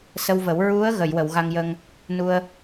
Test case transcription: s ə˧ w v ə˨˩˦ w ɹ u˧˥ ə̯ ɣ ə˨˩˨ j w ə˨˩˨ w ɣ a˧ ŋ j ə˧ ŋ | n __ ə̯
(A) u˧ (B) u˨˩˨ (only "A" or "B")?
A